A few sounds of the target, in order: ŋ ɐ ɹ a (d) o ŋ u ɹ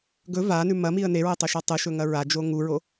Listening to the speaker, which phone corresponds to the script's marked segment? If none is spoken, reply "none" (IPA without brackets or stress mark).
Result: d͡ʒ